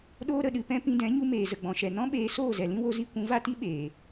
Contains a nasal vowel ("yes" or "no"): yes